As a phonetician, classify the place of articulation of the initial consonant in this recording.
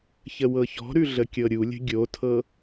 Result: palatal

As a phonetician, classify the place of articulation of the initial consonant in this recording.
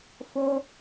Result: labial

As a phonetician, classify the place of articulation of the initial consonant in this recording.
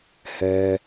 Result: glottal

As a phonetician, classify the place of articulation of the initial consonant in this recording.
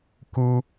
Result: velar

